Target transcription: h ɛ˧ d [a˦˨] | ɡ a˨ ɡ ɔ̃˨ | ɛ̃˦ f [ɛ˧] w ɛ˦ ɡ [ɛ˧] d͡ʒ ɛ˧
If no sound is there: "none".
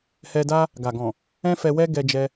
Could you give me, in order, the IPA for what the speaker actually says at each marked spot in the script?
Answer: a˦, ɛ˧, ɛ˧

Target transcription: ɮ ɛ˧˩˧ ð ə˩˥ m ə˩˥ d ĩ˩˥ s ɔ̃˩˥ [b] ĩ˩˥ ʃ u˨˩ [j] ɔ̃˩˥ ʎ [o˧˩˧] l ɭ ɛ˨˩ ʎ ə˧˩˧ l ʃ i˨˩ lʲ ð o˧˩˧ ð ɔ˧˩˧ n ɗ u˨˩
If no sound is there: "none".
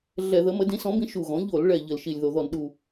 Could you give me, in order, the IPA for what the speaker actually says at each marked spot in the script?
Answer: b, ɣ, o˧˩˧

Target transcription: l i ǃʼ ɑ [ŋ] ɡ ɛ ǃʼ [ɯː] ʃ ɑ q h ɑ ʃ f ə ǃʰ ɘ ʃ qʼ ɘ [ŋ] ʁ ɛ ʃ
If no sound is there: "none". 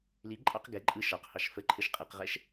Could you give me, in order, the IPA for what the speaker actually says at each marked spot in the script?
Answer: q, ɯ, q

